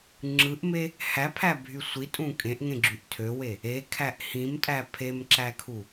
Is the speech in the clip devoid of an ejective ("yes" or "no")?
no